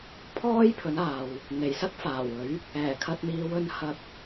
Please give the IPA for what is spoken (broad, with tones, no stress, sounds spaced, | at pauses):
pʰ ɔː˥ j pʰ ɵ˨˥ n aː˨ w | n̪ e˨˩ j s ɐ˥ k̚ f aː˨˩ w ɵ˨˥ ɥ | ɛː˨˩ kʰ ɐ˧ t̚ n̪ iː˨˧ w ɵ˧ n h ɐ˧ p̚